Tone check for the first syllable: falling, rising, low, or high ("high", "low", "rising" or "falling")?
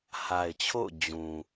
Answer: low